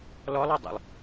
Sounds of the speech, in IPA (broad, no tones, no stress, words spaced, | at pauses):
lɔlˠɔdˤṵlˠ